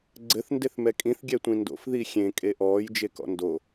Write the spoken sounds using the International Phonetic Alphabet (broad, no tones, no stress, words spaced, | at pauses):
ɡ͡ǀɘθ ndeθmɛkʼĩθ ɡʲɛtʷĩndo̰f ðixʲẽ kʼeʔɔːj d͡ʒekɔ̰ndo